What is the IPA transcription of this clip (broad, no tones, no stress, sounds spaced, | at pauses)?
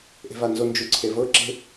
ʔ e̤ v a n z o n d͡ʒ u ǀʰ e v ɤ ǁ e̤